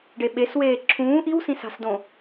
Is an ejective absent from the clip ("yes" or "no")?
yes